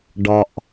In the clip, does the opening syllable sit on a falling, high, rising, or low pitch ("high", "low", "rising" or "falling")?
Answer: low